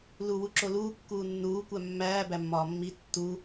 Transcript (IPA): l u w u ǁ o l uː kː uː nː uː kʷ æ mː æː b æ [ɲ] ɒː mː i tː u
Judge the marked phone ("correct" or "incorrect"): incorrect